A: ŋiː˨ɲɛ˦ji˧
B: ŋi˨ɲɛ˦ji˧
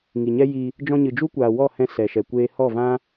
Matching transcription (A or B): B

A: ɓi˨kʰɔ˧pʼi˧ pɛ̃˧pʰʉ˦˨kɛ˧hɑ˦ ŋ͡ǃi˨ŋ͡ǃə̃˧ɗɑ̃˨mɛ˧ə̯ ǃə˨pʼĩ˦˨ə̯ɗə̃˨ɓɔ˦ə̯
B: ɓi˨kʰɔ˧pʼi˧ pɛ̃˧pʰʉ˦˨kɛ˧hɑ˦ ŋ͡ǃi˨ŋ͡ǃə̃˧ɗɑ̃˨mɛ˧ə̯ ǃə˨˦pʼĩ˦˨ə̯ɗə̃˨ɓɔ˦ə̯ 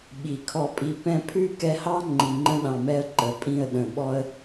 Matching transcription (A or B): B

